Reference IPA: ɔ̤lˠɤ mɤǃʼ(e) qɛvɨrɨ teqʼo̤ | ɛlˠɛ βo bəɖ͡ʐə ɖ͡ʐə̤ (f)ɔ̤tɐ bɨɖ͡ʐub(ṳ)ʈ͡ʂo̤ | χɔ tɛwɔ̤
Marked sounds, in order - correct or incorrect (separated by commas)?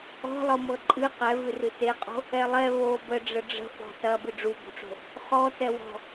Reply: incorrect, correct, incorrect